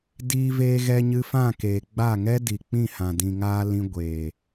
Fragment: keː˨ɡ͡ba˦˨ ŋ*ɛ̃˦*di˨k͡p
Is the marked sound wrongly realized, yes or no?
yes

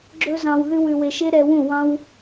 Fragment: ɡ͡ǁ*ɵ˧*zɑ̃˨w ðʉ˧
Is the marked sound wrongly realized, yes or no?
no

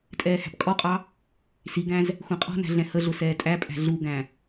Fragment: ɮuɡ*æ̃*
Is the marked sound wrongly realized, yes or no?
no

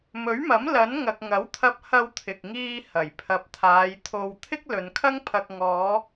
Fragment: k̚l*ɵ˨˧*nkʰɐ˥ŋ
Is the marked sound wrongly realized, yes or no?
no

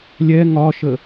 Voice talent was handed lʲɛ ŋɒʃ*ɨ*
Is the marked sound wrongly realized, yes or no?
yes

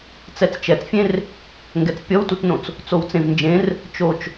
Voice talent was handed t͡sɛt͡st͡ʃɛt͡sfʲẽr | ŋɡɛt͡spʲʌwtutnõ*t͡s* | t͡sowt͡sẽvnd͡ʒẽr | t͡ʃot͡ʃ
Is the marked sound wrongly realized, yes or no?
no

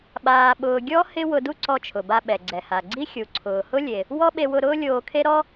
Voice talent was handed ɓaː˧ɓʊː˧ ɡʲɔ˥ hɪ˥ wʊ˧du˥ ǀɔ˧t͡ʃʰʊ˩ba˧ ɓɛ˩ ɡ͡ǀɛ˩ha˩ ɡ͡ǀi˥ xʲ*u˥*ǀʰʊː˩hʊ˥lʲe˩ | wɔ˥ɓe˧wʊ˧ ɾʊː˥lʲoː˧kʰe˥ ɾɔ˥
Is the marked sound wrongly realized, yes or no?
yes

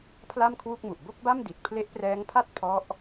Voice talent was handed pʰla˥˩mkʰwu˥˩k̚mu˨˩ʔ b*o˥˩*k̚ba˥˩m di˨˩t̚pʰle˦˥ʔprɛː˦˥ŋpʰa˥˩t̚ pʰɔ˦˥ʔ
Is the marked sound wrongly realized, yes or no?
no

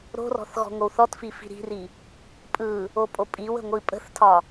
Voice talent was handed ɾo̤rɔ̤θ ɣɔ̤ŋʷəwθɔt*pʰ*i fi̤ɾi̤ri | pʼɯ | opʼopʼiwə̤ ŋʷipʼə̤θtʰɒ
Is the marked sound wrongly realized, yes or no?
yes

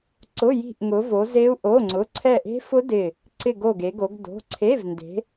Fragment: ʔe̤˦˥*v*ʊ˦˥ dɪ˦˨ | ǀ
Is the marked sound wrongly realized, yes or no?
yes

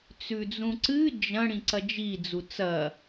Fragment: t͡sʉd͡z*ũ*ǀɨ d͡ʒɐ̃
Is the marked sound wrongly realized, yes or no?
no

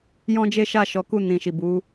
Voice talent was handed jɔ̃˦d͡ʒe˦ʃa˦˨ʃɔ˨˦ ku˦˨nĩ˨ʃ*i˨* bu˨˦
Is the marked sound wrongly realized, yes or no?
no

